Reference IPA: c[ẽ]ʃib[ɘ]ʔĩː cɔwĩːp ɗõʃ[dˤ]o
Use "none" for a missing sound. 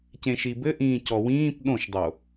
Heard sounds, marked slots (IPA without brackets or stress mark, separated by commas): ẽ, ɘ, dˤ